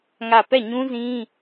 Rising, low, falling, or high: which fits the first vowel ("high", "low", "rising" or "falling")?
falling